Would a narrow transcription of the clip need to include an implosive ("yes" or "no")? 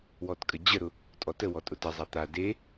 no